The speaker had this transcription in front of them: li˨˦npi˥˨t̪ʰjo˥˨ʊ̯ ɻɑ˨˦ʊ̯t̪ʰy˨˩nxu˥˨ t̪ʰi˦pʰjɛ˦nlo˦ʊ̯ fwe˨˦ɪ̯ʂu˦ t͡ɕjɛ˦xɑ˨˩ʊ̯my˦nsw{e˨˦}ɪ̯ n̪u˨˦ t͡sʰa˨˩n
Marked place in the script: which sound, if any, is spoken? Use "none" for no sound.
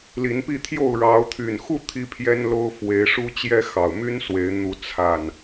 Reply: e˨˦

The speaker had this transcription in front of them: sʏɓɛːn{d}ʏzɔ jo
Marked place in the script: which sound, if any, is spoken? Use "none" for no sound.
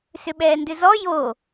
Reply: d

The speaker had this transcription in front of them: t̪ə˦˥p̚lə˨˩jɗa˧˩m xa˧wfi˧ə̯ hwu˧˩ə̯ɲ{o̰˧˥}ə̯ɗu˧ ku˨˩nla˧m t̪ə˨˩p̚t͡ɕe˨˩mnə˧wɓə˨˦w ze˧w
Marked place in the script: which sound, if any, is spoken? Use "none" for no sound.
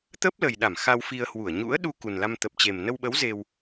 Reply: ṵ˧˥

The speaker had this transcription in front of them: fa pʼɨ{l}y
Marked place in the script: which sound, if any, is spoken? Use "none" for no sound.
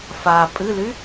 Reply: l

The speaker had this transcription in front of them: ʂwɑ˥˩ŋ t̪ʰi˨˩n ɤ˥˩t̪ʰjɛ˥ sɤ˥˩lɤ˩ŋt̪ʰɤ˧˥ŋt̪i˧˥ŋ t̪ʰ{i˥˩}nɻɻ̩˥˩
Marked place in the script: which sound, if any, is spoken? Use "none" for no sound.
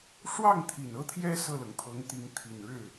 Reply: i˨˩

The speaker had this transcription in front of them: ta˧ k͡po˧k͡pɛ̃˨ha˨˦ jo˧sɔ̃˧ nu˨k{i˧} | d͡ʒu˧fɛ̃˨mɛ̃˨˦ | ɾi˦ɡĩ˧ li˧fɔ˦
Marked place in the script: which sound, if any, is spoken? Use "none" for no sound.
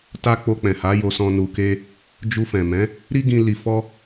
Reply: e˧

